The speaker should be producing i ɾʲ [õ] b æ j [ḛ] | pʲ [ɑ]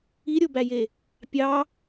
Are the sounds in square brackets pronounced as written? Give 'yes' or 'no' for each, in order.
no, no, yes

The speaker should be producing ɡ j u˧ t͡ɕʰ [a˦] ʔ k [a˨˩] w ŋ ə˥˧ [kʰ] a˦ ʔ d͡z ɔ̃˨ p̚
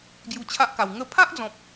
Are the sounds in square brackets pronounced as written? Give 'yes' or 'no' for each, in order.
yes, yes, no

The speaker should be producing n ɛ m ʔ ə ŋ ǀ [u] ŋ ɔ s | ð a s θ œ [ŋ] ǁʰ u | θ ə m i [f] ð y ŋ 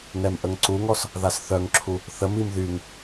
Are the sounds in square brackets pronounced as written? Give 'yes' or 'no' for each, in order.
yes, yes, no

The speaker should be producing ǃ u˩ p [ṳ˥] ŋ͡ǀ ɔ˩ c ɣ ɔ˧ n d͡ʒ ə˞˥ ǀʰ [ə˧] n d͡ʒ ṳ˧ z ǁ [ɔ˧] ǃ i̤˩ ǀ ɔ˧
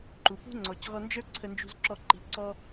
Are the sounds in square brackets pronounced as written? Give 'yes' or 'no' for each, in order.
yes, yes, yes

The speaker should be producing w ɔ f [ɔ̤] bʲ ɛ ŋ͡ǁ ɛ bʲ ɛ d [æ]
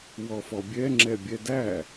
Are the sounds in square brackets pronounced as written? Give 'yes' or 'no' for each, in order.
no, yes

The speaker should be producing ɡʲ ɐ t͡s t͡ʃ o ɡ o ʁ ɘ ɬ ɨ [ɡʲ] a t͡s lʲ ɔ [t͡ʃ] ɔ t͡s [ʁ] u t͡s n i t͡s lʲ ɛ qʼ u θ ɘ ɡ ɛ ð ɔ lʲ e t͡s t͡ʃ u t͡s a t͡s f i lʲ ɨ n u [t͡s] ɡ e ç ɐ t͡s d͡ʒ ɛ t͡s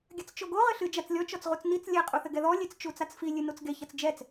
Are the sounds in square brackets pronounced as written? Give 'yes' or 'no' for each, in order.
no, yes, yes, yes

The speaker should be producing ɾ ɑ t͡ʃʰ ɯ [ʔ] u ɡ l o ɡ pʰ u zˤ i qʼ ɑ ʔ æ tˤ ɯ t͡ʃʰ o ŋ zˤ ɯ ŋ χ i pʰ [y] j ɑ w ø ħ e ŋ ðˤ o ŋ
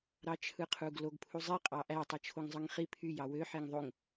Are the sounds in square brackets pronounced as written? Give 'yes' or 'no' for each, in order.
no, yes

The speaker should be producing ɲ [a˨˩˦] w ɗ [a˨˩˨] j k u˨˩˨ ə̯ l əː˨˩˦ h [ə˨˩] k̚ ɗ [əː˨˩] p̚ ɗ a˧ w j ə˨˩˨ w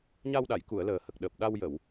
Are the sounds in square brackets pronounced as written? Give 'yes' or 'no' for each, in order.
no, yes, yes, yes

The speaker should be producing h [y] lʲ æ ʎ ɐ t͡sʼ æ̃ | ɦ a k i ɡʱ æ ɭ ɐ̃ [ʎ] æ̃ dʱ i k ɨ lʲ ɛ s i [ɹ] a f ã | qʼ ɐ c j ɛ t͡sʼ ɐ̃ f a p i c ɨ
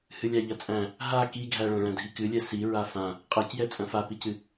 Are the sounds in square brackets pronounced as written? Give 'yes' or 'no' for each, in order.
no, no, yes

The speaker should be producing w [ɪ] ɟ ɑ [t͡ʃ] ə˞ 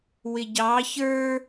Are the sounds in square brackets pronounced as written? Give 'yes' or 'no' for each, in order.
yes, no

